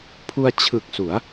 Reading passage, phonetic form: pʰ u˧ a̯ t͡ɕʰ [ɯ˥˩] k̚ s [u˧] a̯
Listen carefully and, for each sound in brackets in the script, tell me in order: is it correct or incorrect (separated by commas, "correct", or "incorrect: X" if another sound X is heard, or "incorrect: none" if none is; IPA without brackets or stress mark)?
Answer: incorrect: ɯ˨˩, incorrect: u˩˦